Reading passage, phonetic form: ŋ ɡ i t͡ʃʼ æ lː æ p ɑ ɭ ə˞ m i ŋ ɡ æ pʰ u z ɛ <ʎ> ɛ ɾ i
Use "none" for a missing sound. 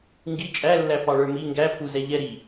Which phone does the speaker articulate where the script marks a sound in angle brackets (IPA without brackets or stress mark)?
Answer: ʎ